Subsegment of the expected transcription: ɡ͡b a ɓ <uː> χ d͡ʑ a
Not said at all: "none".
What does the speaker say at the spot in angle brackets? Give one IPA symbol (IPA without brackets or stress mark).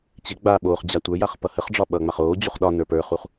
oː